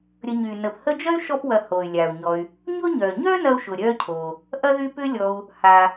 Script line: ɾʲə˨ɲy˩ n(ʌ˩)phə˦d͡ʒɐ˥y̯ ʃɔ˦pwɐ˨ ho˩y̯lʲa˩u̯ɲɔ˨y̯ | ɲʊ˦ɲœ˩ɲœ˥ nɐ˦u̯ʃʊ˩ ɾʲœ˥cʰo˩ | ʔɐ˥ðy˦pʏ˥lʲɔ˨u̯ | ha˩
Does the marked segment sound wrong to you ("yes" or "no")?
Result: yes